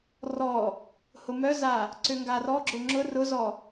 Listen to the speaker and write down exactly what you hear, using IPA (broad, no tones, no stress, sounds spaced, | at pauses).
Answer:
r ɔ | h ʊ m œ z a | ǀ ʏ ŋ ɡ a r ɔ ɡ͡ǁ ʊ ŋ͡ǁ ʊ r ʊ z ɔ